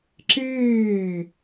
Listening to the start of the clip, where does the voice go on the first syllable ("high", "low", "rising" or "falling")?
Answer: falling